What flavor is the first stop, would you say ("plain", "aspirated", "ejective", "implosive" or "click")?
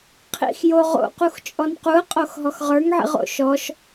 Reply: aspirated